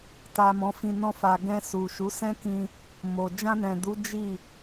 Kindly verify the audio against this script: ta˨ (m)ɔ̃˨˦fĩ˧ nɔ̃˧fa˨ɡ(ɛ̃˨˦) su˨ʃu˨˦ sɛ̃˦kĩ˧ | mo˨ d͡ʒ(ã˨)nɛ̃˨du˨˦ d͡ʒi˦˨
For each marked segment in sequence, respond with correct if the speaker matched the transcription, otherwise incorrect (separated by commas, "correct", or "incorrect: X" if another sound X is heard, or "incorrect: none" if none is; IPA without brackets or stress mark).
correct, incorrect: ɛ̃˧, incorrect: ã˧